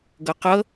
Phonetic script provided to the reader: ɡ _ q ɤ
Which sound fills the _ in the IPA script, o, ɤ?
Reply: ɤ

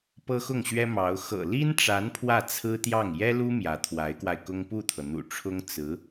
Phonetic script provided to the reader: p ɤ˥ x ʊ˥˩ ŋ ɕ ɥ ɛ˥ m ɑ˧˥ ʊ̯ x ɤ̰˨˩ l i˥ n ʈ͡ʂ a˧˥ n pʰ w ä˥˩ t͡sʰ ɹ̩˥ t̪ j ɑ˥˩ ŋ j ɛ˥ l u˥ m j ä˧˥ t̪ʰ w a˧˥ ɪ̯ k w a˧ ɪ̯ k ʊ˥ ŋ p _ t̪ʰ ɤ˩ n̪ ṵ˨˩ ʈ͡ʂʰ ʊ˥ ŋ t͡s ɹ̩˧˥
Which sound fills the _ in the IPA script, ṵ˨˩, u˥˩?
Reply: u˥˩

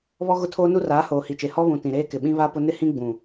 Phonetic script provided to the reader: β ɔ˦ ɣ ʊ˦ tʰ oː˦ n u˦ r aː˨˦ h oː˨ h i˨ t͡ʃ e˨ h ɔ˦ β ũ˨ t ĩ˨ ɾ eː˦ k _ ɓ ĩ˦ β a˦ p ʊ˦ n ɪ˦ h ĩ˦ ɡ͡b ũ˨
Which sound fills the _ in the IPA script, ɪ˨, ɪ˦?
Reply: ɪ˨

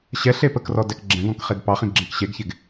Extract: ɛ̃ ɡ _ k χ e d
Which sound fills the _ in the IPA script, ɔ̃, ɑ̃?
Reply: ɔ̃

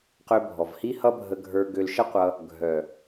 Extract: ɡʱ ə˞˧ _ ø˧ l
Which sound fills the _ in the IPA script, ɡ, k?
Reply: ɡ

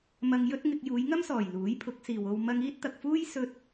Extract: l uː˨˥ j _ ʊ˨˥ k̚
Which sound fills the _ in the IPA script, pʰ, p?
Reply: pʰ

